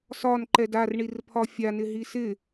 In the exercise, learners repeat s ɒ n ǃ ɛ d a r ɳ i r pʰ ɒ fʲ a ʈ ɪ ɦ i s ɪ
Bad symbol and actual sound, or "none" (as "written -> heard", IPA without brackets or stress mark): ʈ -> n